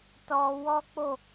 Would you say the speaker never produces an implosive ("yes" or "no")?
yes